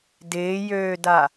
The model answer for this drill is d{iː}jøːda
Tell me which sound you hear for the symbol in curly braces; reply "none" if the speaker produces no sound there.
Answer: ɪː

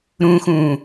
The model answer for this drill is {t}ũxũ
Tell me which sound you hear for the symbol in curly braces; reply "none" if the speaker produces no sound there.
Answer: ɾ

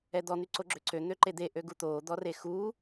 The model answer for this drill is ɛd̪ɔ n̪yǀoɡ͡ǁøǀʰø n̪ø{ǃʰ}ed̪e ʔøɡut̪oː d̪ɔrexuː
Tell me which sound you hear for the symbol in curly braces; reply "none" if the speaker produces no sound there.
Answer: ǃ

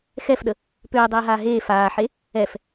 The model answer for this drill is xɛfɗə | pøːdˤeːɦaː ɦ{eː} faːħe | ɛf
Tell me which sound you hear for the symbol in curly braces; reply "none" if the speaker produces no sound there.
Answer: eː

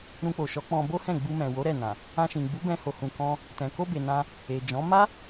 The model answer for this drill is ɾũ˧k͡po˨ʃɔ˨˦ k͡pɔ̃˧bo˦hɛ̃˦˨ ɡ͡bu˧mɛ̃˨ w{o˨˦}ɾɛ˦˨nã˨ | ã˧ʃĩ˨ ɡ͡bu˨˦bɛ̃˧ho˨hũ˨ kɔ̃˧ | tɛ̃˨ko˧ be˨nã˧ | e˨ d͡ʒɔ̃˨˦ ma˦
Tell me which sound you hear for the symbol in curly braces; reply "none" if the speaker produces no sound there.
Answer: o˨˦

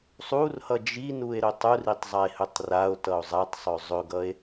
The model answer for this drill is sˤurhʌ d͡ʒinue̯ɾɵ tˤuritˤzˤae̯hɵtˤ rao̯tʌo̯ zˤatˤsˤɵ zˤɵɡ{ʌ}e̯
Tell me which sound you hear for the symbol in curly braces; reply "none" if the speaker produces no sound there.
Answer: ʌ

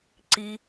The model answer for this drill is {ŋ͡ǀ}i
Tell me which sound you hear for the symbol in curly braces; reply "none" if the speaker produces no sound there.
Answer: ǀ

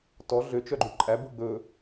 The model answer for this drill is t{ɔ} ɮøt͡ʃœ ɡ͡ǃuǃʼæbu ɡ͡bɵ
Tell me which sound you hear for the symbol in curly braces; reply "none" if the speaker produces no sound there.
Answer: ɔ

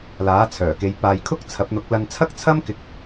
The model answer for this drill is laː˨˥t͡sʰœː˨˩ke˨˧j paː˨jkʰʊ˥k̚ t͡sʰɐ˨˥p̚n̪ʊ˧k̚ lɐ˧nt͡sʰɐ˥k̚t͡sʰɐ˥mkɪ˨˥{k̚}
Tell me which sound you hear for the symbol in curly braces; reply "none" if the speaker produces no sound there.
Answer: k̚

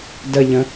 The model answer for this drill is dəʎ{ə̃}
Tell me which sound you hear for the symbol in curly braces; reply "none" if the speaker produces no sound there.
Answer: ə̃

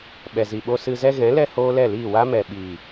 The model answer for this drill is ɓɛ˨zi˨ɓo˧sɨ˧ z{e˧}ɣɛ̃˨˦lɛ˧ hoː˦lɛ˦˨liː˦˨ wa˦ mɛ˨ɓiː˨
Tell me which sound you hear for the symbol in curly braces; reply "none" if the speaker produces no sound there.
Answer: ɛ˧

